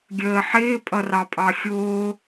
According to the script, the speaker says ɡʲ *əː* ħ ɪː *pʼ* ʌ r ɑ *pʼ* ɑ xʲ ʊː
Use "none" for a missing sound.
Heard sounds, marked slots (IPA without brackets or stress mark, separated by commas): əː, pʼ, pʼ